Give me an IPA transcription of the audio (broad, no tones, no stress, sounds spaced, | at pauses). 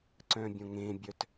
ǀ œ̃ bʲ õ ŋ ẽ bʲ œ t